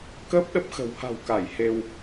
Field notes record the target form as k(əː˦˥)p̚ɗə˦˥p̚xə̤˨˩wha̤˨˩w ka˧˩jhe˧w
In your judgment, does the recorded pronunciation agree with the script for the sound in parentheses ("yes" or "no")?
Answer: yes